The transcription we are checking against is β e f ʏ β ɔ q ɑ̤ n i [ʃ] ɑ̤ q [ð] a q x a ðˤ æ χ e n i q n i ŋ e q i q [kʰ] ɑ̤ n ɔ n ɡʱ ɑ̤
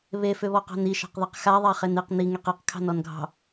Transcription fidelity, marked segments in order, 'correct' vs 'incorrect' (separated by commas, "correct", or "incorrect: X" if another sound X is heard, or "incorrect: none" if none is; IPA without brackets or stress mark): correct, correct, correct